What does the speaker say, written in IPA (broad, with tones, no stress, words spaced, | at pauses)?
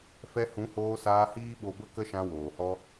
fɛ˧hũ˨˦hoː˧saː˧ hiː˦ɓo˧bə˦kə˦ ʃã˧woː˨hɔ˦